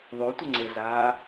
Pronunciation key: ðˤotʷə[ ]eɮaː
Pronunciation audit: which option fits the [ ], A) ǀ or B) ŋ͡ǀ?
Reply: B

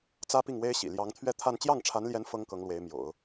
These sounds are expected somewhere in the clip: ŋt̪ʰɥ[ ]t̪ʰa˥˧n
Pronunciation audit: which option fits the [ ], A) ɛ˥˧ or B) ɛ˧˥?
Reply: A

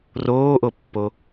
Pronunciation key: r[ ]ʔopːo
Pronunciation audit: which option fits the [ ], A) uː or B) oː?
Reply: B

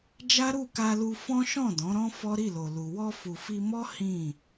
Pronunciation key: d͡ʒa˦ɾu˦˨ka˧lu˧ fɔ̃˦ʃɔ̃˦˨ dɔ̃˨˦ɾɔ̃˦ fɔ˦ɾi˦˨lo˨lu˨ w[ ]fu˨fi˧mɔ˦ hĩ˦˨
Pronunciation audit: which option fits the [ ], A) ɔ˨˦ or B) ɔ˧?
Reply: B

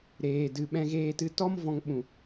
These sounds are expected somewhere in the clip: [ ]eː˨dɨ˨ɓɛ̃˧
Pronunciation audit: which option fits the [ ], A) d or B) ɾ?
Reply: B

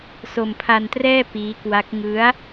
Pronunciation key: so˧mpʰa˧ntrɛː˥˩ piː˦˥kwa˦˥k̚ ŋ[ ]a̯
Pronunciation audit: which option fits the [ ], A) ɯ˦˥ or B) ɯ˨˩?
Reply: A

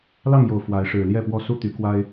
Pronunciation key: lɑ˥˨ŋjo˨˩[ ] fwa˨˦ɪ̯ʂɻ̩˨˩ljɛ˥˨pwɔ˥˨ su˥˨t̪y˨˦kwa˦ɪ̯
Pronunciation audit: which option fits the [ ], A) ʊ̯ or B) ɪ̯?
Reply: A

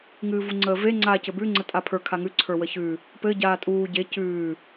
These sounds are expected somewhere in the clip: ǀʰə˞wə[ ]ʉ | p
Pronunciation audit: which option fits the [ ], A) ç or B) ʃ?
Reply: A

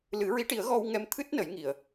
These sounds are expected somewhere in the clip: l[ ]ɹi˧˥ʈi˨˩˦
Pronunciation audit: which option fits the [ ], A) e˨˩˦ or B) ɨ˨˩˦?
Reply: B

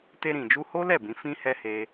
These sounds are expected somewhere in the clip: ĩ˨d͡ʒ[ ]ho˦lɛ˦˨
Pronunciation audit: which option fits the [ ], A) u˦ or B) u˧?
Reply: B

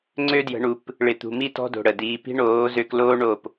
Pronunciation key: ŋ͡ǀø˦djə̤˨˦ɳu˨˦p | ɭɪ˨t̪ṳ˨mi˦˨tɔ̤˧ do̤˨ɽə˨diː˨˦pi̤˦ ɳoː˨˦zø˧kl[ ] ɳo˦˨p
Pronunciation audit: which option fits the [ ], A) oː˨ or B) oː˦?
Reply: B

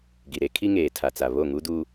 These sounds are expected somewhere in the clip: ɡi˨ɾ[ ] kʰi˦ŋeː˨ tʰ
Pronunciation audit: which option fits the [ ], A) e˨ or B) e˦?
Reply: B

